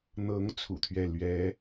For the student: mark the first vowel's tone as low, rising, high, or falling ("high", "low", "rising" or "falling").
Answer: rising